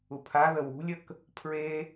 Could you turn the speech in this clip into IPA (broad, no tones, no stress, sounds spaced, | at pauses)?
u pʰ a ð ə w ṳ lʲ ə k | pʰ ɹ e